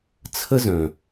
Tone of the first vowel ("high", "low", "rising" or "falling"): high